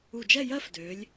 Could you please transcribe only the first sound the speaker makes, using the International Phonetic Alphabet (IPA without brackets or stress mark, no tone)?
u